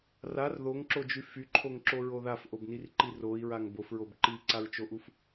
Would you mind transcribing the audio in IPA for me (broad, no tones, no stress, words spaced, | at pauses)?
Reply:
rar ðoŋǁod͡ʒy fyǃʰoŋǁoɹo ðafʔobnirǃi roi̯ɹaŋ bofɹob ǃiǀaɹt͡ʃoʔuf